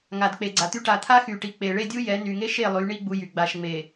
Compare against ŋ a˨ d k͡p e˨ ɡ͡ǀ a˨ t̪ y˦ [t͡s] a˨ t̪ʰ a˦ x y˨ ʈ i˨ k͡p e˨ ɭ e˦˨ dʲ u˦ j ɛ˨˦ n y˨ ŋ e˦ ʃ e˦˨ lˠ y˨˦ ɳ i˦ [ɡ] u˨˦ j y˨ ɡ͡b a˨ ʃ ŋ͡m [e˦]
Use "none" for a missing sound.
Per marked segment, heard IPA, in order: ʈ, ɡ͡b, e˨

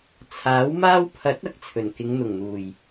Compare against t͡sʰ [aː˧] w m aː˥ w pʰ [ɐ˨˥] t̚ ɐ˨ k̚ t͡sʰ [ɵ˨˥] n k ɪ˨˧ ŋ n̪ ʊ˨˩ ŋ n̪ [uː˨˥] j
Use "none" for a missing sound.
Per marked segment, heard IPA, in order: aː˨˥, ɐ˨˥, ɵ˨˩, uː˨˩

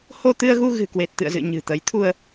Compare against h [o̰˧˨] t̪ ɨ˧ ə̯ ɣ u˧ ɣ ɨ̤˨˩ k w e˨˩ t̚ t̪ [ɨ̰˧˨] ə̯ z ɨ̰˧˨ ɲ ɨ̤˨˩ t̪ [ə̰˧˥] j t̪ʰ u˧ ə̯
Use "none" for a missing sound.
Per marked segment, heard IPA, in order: o˧, ɨ̰˧˨, ə˨˦

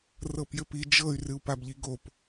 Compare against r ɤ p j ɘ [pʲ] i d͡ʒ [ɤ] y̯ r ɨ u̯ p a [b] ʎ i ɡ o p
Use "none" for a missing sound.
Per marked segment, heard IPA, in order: p, ɤ, b

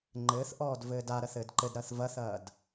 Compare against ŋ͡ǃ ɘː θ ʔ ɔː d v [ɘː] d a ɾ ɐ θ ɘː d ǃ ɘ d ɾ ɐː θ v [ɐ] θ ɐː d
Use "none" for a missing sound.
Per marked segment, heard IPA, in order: ɘː, ɐ

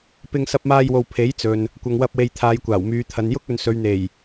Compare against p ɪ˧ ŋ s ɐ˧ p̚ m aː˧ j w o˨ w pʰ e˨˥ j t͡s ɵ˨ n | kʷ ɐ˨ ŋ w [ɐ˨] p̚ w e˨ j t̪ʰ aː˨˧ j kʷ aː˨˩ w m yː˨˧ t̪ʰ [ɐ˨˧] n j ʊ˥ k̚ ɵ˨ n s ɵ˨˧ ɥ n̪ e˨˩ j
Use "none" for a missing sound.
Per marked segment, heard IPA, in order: ɐ˧, ɐ˨˧

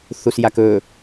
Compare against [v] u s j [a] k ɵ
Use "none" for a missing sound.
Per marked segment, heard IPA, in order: θ, a

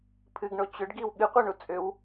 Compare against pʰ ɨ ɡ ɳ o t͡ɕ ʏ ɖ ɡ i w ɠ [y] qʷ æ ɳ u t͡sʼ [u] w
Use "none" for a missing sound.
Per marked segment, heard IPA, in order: ɨ, ʏ

